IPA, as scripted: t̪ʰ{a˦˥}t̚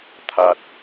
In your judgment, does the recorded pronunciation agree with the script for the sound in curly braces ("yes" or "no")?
no